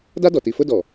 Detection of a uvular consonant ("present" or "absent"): absent